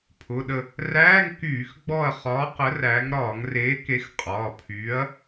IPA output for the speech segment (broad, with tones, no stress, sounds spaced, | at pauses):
pʰ ʊ˩˧˩ ɗ ə˦˨ | r æː˧˥˧ ŋ k yː˧˩˧ x ɡ͡b ɔ˦˨ ɐ̯ χ ɒː˨˥ q ə˨˥ r æ˨˥ ŋ ɾ ɒː˧˩˧ ŋ r eː˨˥ k e˨˥ x qʼ ɒː˩˧˩ pʰ yː˨˥ ɐ̯